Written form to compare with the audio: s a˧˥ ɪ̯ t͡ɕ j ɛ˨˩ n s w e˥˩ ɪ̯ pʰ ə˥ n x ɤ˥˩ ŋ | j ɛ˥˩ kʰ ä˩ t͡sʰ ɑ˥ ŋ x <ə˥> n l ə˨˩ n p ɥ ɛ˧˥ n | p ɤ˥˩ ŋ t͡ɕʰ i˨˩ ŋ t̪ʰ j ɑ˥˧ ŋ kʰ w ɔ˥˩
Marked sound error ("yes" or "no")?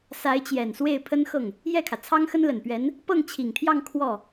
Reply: no